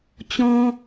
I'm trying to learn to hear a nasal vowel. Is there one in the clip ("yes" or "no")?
yes